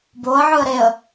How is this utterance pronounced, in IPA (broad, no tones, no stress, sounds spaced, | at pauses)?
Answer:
b o ə̯ ʕ ɯ ə̯ ɾ e ə̯